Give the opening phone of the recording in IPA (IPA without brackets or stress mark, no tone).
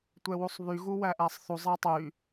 tʷ